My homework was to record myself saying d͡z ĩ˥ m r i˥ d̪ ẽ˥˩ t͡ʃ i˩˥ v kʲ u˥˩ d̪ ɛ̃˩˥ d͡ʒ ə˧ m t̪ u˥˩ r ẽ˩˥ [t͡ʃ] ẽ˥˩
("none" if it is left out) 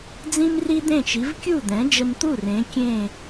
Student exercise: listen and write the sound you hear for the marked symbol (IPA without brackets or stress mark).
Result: kʲ